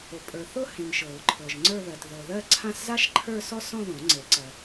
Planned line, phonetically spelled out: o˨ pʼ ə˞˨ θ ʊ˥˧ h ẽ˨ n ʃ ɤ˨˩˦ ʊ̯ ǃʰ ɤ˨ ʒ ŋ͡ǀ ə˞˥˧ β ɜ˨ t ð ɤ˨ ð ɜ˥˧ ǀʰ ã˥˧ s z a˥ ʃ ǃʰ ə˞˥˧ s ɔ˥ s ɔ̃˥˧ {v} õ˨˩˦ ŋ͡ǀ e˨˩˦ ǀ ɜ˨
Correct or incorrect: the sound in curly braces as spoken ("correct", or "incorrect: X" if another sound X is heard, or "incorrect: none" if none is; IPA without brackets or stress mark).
incorrect: ð